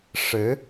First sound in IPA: ʂ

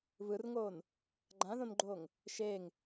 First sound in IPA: β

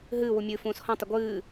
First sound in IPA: ɦ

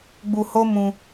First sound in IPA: ɡ͡b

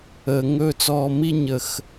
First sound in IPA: əː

